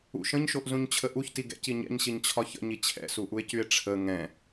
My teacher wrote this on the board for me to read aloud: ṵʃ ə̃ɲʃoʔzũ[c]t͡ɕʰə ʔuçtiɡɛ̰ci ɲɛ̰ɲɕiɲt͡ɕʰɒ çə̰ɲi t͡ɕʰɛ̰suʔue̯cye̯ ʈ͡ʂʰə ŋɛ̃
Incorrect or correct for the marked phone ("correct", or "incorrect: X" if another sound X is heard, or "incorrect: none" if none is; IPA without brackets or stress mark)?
incorrect: ɲ